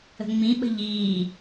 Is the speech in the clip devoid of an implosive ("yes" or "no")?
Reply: no